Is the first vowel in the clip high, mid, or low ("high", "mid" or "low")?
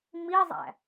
high